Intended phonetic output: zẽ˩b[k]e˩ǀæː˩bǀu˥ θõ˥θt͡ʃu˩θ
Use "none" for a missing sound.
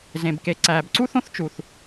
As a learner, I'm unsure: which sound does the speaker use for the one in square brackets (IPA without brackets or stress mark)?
k